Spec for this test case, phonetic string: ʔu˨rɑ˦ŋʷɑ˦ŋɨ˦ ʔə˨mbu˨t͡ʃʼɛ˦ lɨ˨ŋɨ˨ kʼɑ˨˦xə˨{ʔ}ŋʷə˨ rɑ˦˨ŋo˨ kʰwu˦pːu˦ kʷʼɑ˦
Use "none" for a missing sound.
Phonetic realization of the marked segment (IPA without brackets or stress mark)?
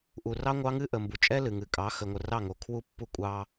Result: none